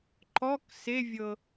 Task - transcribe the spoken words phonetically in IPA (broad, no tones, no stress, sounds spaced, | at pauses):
ǃ ɔ k s e vʲ ɤ